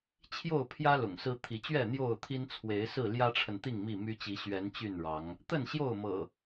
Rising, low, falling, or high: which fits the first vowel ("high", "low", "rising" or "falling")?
falling